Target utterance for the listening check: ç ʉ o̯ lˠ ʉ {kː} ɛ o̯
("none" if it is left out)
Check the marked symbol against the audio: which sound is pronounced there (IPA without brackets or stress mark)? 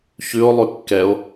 kː